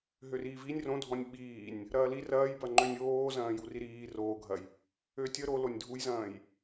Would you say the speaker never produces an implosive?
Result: no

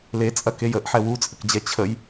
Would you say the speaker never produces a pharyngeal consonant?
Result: no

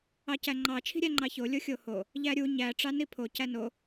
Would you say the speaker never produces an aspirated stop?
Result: no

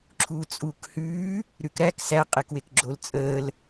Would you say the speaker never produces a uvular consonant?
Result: no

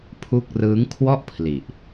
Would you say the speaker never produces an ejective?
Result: yes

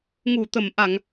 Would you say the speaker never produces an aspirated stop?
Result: yes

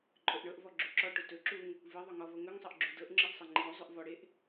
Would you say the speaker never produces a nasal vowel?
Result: yes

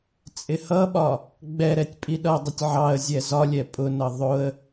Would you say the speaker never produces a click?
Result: yes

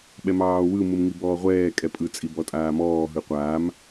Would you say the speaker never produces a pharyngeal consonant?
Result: yes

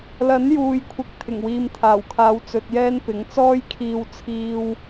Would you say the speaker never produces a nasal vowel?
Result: yes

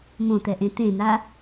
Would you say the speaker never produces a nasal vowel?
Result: no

